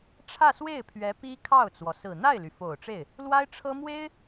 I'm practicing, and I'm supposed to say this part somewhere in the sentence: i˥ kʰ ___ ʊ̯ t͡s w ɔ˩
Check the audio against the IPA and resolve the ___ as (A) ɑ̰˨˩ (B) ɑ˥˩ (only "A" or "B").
B